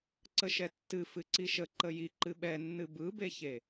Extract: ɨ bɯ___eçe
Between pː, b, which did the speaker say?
b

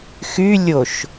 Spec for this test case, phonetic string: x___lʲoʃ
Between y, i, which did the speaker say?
y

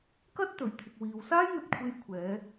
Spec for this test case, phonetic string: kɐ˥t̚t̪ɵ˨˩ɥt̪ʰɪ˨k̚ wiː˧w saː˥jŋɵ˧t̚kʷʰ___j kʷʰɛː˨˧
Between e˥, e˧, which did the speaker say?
e˧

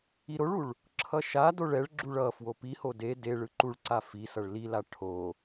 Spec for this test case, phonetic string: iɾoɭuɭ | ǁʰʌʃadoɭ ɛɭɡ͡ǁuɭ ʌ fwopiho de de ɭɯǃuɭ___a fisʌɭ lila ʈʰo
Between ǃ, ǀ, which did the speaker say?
ǀ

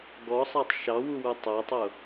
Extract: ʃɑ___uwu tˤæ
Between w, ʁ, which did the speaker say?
w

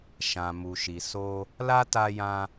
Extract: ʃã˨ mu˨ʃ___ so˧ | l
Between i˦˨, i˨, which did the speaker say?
i˨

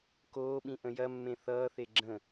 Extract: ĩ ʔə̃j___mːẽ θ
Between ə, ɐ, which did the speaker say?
ɐ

